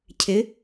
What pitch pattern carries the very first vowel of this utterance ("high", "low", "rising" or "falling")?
rising